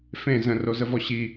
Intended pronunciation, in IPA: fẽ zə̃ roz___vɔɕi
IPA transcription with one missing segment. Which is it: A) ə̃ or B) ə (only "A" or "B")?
B